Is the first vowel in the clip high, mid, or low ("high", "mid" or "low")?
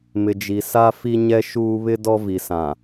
high